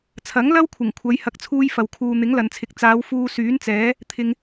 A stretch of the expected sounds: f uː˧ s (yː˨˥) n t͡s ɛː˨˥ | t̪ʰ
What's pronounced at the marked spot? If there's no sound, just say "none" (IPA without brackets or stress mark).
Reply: yː˨˥